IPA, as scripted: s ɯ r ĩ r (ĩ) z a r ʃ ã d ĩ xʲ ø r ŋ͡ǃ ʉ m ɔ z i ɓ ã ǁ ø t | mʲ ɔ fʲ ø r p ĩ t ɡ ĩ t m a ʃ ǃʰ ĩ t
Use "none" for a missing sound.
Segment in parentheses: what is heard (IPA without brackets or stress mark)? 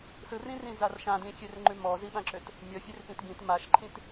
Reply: ĩ